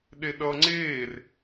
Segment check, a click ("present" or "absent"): present